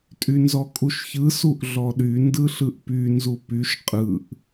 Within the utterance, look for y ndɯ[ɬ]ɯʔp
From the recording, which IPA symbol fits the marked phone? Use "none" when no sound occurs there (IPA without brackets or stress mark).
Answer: ɬ